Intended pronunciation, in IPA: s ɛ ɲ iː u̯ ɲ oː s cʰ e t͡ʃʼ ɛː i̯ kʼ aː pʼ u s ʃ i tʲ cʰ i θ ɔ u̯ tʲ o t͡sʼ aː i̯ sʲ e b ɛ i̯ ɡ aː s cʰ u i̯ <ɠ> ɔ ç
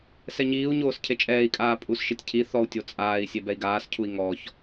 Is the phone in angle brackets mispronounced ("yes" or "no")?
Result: yes